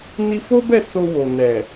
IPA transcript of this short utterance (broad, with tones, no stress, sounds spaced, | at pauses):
n i˧ f o˦ b ɛ˦˨ s o˧ w o˨ n ɛ˨